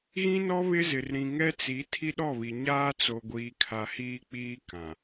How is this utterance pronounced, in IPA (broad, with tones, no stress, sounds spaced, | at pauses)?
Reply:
ɣ ĩ˦ n ɔ˦ β ɪ˦ z ɪ˨ r ɾ ĩ˨ ŋ ɛ˦ t͡s i˨˦ tʰ i˦ ɗ ɔ˦˨ β i˨ ɲ aː˦ t͡s o˨ ɡʷ iː˨ kʰ a˨ h iː˦ k͡p iː˦ k ã˨